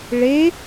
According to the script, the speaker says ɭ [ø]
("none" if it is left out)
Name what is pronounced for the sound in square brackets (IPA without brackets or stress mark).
e